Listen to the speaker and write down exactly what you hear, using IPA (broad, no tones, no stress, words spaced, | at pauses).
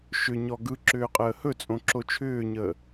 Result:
ʃʏɲɔ ɡɯ ǁʏːqʼəːhɵ t͡sʼõǁot͡ʃʰʏːɲəː